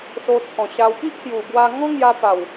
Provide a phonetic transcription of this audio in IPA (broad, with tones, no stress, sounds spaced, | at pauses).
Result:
s o˧ t͡sʰ ɔ̃˨˩ ɕ a˧ w k i˦ ʔ h j u˨˩ b w a˧ ŋ ɔ̃˦ ŋ j a˧ p a˨˩ w